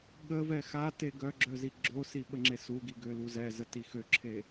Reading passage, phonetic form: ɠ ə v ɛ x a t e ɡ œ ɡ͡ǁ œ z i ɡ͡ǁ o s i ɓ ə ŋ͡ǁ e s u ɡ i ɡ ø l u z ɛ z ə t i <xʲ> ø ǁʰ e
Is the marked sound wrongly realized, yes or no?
yes